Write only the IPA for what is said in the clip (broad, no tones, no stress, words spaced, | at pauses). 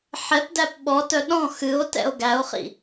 ħɛpdæp ɓɔtœ ɗɔ̃ xɨo̯tɛ̰o̯ ɡæo̯χḭ